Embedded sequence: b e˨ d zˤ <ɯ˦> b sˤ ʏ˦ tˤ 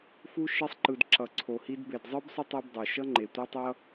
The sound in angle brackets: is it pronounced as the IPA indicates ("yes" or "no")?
yes